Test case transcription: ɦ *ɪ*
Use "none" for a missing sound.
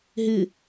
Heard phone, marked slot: ɪ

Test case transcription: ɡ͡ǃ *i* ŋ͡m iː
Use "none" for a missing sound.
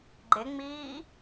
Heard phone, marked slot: e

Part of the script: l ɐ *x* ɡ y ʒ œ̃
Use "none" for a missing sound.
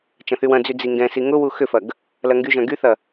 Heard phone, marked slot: ŋ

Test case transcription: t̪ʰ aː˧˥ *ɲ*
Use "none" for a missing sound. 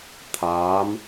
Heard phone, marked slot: m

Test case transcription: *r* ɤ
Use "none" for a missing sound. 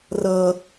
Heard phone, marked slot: r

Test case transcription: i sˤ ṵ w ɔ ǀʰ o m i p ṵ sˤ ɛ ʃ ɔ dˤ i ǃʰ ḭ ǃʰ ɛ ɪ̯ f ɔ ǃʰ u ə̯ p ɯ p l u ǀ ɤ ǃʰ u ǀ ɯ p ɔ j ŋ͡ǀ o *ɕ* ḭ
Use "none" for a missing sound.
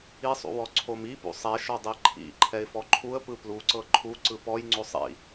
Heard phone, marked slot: sˤ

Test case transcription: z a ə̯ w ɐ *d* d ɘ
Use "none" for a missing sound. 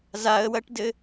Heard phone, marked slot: ʈ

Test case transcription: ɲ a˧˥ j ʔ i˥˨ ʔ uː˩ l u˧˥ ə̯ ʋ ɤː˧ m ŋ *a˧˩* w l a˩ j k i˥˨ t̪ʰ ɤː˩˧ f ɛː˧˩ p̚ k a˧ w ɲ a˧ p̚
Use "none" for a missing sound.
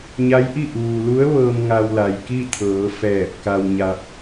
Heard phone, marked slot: a˧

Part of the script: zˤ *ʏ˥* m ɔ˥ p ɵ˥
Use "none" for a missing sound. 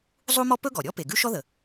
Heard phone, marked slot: u˥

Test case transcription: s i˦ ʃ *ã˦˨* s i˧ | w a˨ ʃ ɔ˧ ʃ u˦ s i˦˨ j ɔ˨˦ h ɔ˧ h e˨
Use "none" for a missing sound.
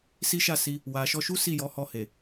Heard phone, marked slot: a˦˨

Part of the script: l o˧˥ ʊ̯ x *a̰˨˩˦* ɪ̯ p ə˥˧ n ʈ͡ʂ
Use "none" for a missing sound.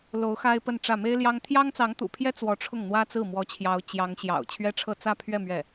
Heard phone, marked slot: a˥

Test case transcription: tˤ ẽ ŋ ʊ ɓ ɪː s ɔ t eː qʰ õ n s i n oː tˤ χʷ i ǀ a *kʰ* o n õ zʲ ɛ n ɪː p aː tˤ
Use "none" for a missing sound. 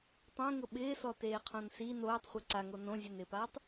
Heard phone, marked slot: ŋ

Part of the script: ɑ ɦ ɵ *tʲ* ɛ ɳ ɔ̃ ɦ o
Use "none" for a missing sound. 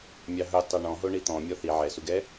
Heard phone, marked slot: tˤ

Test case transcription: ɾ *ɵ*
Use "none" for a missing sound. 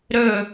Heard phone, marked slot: ɵ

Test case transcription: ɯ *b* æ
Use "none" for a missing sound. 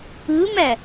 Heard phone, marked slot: m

